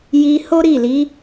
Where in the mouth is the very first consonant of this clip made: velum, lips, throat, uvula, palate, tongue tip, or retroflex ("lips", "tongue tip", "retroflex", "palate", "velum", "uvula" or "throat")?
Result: palate